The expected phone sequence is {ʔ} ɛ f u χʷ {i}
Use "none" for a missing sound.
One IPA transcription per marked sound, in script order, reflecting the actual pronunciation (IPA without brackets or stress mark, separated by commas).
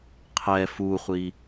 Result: qʰ, i